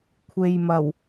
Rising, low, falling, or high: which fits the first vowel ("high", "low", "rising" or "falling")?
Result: low